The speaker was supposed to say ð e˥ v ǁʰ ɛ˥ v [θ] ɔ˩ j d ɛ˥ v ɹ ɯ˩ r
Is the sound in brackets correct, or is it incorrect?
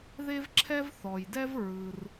correct